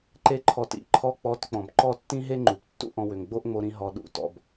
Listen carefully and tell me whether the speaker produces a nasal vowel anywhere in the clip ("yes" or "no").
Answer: yes